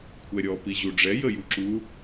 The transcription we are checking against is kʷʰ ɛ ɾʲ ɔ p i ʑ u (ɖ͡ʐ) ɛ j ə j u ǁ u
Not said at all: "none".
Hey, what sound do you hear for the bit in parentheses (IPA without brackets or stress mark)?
ɖ͡ʐ